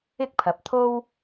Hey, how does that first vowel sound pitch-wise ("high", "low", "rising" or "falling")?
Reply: high